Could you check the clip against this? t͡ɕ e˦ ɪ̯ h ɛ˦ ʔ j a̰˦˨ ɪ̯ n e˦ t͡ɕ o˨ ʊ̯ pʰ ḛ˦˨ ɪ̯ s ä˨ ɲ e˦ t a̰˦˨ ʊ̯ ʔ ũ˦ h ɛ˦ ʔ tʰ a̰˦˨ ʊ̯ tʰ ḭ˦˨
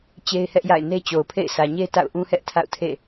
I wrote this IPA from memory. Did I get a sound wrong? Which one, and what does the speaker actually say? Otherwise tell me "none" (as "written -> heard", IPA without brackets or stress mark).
ḭ˦˨ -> ḛ˦˨